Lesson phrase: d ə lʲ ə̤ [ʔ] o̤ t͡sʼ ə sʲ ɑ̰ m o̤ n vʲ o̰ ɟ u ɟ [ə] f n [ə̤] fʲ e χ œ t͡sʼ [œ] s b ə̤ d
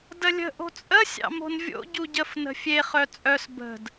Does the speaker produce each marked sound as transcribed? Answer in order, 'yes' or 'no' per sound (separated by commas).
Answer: yes, yes, yes, yes